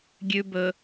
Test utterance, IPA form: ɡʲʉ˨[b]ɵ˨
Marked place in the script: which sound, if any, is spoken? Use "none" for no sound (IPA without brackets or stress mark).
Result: b